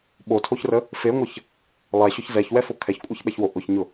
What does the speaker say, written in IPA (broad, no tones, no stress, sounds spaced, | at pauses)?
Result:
ɓ o tʰ o ç r ə | f e ŋʷ ə ç | lˠ ɛ ɕ ʊ ç z ɛ ç w ɛ f o kʰ ɛ ç kʷʼ ɛ ç ɓ ɛ ç w o ʔ ʊ ç ɲ ʊ